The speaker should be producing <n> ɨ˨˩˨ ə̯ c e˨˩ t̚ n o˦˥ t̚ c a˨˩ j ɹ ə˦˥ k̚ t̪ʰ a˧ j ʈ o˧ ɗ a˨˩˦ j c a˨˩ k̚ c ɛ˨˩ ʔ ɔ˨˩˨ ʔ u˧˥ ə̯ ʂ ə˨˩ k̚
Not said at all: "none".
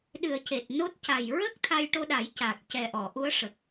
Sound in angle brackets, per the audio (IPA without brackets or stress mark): ɗ